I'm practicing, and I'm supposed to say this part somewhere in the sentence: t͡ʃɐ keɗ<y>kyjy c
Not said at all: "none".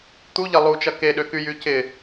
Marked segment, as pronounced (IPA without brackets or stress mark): ø